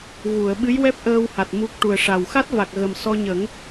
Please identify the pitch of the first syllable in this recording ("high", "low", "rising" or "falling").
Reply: low